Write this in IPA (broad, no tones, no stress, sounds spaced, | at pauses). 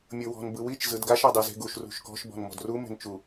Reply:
mʲ ɤ w ɔ̤ n b ɯ w i t͡ʃ z ɯ d ɡ a ʃ a dˤ ɛ z e̤ ɡ u ʃ r ṳ ʃ k ɔ̤ ʃ b ɔ̤ n m ɔ̤ d r u m e̤ n t͡ʃ u